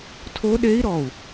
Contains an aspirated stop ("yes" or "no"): yes